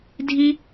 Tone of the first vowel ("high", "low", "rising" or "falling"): high